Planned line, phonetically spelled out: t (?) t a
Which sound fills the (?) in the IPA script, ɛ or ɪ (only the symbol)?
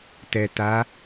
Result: ɛ